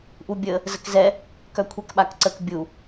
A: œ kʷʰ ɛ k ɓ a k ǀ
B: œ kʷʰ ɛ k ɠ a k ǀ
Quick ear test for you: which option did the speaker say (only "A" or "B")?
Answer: A